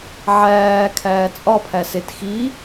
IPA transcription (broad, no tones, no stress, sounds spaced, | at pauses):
ʕ æː kʰ æː t͡sʼ ɒ pʰ æ s e t x i